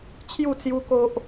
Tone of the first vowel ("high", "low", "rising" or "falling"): falling